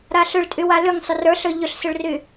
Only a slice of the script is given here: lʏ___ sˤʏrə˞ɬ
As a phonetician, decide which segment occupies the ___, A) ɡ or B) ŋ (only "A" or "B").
B